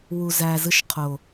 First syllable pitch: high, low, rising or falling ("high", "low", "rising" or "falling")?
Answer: low